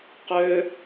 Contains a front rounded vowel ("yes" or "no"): yes